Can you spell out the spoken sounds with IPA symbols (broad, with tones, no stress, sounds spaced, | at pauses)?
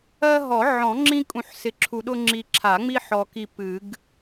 ɜ˦ ɦ ɔ˨˩˦ ʕ ɔ̃˨˩˦ ŋ͡ǁ ĩ˦ kʼ ũ˨ ħ s ɪ˨ ǁʰ u˨ ɗ ʊ˦ ŋ͡ǁ i˨ ǁʰ a˨˩˦ ŋ͡m i˦ ħ ɔ˨ k i˦˨ p ɨ˨˩˦ ɡ